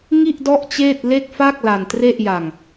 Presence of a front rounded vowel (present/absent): absent